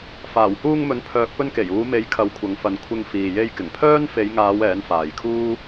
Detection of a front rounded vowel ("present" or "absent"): present